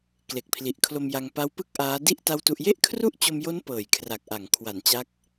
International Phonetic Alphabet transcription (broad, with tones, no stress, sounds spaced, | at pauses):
k l e˨˩ k̚ pʰ l i˨˩ ʔ kʰ l o˧ m j a˧ ŋ p a˦˥ w p ɯ˥˩ k̚ ʔ aː˦˥ d i˥˩ ʔ t a˥˩ w t u˥˩ ʔ j e˥˩ ʔ kʰ r u˥˩ ʔ t͡ɕ o˧ m j o˦˥ n p ɤː˨˩ j kʰ r a˨˩ k̚ ʔ a˩˦ ŋ kʰ w a˩˦ n t͡ɕ a˦˥ k̚